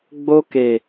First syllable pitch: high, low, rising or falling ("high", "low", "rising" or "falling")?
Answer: high